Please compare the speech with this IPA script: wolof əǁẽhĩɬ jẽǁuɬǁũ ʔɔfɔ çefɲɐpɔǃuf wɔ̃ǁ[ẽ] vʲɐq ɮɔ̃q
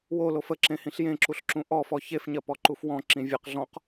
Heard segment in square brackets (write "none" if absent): ĩ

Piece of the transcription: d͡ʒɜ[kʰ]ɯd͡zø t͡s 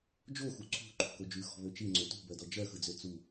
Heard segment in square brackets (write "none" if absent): x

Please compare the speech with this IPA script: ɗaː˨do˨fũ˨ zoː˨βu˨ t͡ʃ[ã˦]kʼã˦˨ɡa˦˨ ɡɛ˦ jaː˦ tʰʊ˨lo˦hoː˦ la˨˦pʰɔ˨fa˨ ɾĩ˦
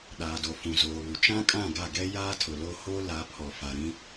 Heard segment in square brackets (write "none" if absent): ã˦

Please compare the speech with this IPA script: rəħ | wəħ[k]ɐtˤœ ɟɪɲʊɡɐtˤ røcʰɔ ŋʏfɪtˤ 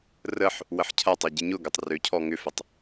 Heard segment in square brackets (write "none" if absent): cʰ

